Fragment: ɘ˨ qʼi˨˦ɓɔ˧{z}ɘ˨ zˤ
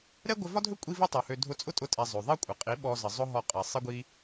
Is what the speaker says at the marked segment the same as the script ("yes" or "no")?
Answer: yes